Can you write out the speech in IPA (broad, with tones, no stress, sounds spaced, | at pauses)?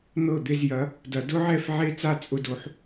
n̪ ɤ˥˩ d̪ e˥˧ z j ɐ˨˥ | d ɐ˨˩˦ d ʊ˦˥ ʕ ɛ˥˩ f ʕ e˥˧ t͡s a˥˧ t͡sʼ ʊ˦˥ d o˨˥ ħ